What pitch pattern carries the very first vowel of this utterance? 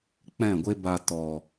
falling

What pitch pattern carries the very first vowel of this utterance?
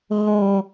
low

